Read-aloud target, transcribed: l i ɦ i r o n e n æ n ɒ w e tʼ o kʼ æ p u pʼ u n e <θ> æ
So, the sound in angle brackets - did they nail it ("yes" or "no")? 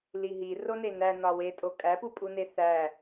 yes